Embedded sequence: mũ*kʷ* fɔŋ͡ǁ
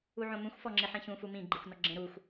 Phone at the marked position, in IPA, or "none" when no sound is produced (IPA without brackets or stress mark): xʷ